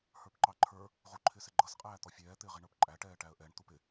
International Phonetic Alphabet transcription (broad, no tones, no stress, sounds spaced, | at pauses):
h ə˞ p ǃ ɑ ǃʰ ə˞ | ʁ u ǃʰ ɪː s ɪ ɡ͡ǃ ʌ s qʼ æː t̪ ɔ fʲ ɛː t̪ ɪː ʁ i ɳ ə˞ p ǃʼ æ ʈ ɛː ʈ æ ə̯ ʔ ɛ ɳ t̪ u p ɪ